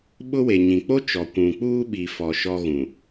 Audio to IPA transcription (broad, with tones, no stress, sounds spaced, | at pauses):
ɓ ʊ˦ w e˨ ɲ ĩ˨ k͡p o˦ t͡ʃ ɔ˨ kʷ ũ˨ k͡p uː˦ ɓ i˨ f ɔ˨ ʃ ɔ˦ ɣ ũ˨